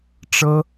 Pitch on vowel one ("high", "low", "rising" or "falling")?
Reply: high